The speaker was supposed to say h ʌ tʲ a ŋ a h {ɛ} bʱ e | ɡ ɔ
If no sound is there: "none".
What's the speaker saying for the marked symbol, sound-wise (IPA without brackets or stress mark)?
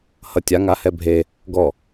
ɛ